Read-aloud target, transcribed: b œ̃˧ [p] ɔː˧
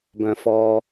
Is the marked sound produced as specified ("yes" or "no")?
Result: no